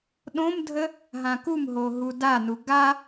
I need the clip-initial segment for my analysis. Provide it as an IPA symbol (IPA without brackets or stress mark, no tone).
ɗ